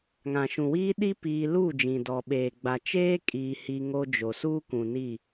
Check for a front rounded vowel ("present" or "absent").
absent